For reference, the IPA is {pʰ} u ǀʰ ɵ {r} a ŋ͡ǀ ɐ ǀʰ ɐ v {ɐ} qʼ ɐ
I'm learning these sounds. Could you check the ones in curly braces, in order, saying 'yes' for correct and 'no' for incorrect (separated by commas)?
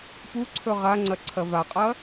no, no, no